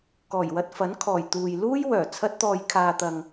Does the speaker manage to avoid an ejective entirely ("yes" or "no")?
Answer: yes